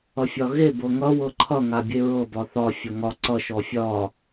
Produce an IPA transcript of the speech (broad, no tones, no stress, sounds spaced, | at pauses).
ʌ fʲ ɒ ɣ e b ɤ ŋ ʌ w ɤ ǃʰ ʌ ŋ a bʲ e ɹ ɤ b ɒ θ ɒ fʲ ɒ ŋ ɒ ǀ ʌ ʃ ɔ fʲ ɒ